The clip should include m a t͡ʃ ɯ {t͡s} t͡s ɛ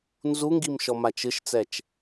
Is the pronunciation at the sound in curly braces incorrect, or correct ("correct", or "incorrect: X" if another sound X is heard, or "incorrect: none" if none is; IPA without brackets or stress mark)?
incorrect: ʃ